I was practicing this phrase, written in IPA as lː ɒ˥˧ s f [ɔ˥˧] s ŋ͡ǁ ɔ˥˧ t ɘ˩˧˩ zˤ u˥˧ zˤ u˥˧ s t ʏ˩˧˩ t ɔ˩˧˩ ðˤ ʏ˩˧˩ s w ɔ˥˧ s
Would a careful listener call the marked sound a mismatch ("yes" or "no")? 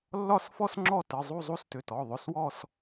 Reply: no